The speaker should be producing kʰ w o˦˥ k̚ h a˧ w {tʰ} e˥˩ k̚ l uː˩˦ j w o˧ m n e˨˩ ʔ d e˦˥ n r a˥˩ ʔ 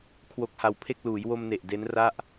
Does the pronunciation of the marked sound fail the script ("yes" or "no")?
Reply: yes